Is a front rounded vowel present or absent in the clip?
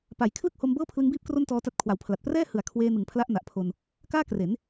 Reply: absent